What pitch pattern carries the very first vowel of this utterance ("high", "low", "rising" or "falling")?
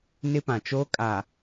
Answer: high